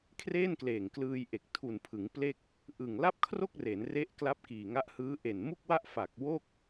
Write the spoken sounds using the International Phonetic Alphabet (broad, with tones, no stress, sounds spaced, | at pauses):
kʰ r eː˥˩ n k l eː˨˩ ŋ k l ɯː˧ j ʔ e˨˩ k̚ tʰ u˨˩ n pʰ ɯ˩˦ ŋ p l e˥˩ k̚ | ʔ ɯ˨˩ ŋ l a˥˩ p̚ kʰ r o˥˩ k̚ r e˩˦ n r e˦˥ ʔ k l a˦˥ p̚ k iː˨˩ ŋ a˦˥ ʔ h ɯː˦˥ ʔ e˨˩ n m u˥˩ k̚ w a˥˩ ʔ f a˨˩ k̚ w o˥˩ k̚